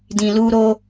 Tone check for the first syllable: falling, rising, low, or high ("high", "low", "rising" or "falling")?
low